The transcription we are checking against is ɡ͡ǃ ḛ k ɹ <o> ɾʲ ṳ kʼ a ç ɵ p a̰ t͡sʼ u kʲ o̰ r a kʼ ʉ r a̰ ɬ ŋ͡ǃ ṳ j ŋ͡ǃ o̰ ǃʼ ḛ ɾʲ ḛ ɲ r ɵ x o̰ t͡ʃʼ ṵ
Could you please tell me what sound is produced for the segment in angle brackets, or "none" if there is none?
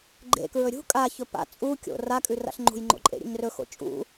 ɵ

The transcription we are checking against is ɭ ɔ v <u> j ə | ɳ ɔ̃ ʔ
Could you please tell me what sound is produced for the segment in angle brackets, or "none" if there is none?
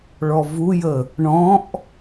u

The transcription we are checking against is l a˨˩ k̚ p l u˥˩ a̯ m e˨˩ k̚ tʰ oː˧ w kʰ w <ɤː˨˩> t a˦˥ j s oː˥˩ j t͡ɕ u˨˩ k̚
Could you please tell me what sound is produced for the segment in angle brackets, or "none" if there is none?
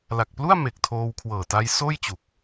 ɤː˨˩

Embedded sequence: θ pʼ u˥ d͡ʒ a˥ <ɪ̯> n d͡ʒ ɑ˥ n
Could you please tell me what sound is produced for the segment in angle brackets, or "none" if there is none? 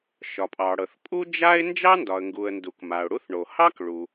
ɪ̯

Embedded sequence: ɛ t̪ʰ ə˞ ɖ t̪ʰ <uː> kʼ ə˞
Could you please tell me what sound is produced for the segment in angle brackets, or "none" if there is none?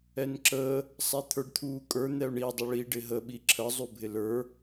uː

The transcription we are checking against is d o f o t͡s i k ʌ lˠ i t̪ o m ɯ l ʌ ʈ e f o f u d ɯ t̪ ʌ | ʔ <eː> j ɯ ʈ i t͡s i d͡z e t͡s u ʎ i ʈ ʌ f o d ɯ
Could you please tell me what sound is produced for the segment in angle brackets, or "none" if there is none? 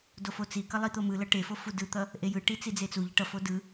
e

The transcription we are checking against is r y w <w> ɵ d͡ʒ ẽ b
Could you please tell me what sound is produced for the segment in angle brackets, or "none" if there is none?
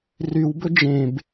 b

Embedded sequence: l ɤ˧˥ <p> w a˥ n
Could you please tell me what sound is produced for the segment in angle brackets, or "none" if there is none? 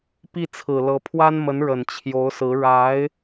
pʰ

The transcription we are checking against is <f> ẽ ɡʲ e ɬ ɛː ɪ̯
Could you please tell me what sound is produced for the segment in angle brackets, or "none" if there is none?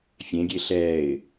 fʲ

